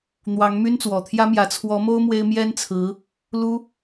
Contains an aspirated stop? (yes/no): yes